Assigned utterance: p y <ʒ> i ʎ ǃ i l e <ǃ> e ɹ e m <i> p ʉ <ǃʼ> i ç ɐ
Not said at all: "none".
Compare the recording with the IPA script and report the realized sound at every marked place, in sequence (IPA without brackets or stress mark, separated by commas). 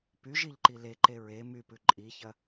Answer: ʒ, ǃ, y, ǃʼ